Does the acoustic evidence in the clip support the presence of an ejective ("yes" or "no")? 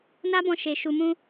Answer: no